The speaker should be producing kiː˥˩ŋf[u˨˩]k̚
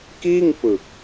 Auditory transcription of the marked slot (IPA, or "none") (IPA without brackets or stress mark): ɯ˨˩